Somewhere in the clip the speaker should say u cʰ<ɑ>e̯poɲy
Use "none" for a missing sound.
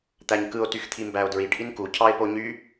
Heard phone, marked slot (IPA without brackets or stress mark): ɑ